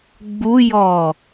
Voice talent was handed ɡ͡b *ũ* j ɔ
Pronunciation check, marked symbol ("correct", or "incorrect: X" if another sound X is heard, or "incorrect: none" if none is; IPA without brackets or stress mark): incorrect: u